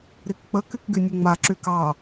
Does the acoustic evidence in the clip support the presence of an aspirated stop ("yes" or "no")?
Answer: no